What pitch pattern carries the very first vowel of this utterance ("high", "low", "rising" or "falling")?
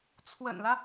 low